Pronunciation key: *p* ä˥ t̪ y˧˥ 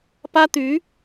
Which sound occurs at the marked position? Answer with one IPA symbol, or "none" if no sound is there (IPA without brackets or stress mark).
p